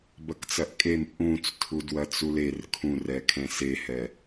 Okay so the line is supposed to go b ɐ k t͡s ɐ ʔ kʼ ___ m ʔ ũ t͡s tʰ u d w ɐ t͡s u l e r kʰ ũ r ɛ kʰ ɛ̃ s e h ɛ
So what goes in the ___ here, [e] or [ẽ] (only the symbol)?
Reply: e